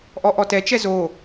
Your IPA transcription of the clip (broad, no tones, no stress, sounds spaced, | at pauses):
ʔ ɔ ʔ ɔ t ɛ t͡ʃ ɛ z o